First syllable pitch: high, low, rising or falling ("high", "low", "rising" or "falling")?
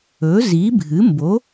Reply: rising